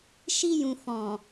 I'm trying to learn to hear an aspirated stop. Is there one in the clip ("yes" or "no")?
no